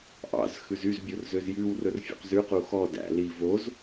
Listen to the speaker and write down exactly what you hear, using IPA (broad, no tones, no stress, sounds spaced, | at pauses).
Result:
ʔ ɑ̰ z x ʉ z y z bʲ o r z ø z j ʉ w r ɵ r fʲ ṵ q z ʉ q u x ɔ d æ̰ l i v o z